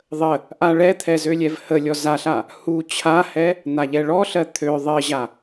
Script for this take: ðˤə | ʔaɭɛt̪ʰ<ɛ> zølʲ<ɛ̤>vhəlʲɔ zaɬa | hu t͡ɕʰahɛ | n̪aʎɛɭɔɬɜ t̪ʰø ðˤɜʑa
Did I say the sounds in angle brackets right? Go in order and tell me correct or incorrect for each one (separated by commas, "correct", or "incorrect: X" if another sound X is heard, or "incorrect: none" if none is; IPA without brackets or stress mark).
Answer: correct, incorrect: ɛ